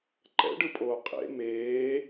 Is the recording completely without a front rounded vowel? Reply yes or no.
yes